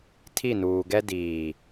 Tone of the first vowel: falling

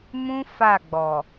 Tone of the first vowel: high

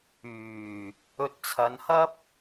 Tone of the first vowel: low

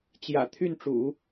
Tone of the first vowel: low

